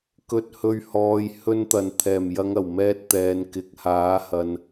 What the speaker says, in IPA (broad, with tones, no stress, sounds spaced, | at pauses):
k ɵ˨ t̚ h ɵ˨ ɥ h ɔː˨ j h ɵ˧ n t̪ ɐ˨˩ n t̪ʰ ɛː˨˩ m j ɐ˨˧ ŋ ɐ˨˩ w m ɛː˧ t̚ t̪ ɛː˨ n k ɪ˨ k̚ h aː˨˥ h ɐ˨ n